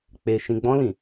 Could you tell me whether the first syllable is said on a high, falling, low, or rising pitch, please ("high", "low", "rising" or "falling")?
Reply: low